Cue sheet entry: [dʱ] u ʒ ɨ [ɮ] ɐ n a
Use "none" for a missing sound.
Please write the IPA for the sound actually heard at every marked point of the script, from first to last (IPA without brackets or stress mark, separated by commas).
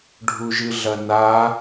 ɖʱ, ɮ